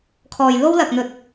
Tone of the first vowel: low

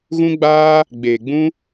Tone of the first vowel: high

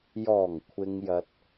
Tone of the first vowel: low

